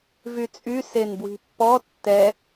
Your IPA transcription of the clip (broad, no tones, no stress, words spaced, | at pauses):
vyt͡sʼy senbwi̤pːɔ tːɛ